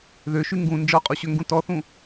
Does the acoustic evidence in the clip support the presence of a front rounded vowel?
yes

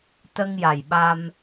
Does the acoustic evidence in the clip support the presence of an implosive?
yes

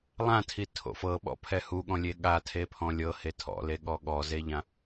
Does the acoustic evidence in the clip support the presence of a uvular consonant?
no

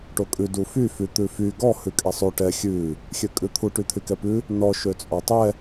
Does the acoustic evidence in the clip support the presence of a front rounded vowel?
yes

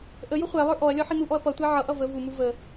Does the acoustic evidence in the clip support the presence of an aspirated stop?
no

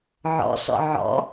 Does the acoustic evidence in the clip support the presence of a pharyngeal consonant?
yes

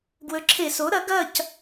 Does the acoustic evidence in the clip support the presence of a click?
yes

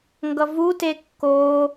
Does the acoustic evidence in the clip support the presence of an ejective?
no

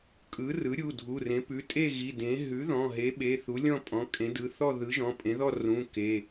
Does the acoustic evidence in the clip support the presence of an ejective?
yes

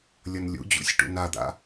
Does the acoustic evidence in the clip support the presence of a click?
no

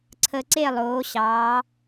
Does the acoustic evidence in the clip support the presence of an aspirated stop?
yes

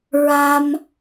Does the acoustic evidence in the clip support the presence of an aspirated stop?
no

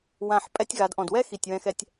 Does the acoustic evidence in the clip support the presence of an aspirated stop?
no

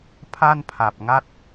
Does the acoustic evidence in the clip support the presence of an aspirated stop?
yes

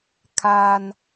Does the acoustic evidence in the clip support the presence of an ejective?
no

